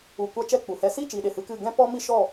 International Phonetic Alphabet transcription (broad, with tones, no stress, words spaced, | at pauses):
u˨kʷa˧ t͡ʃɛ˦˨k͡pu˨hɛ˧ si˦˨t͡ʃi˨ ɗe˨hɨ˧kɨ˦˨ ɡɛ̃˦pɔ˦ mi˦ʃɔ˦˨